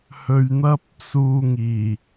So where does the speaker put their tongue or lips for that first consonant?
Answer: throat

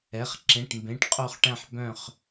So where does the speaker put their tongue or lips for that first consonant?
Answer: uvula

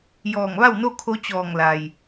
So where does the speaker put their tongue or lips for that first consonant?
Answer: palate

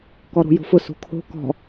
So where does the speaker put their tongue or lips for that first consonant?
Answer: velum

